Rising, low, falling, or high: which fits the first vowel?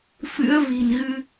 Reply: rising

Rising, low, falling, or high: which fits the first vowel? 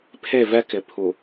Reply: falling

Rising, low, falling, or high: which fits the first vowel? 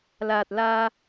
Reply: low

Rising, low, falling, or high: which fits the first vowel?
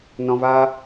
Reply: low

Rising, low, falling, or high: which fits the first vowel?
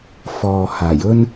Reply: low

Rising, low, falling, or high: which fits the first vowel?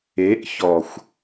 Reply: rising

